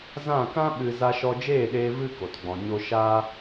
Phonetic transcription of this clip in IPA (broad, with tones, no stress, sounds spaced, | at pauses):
z ã˦˨ k ã˦ ɓ ɨ˧ z a˧ ʃ ɔ˧ d͡ʒ eː˦˨ ɗ eː˧ v ɨ˧ k o˨ t ɡ͡b ɔ̃˨ ɲ o˧ ʃ a˧